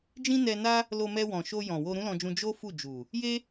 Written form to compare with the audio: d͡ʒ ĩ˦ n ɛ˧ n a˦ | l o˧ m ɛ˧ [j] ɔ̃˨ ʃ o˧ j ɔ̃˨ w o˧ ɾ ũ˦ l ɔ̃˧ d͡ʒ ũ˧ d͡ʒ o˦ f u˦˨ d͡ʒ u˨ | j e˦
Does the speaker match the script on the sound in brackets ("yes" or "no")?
no